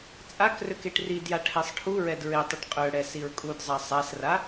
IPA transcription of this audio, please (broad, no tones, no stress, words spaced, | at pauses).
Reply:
t͡sʼakrøk eʈridja ʈʰesˤʈʰuɹɛd ɹetˤiʈ qʼøɽɛ siɹkʼudzˤa sˤasra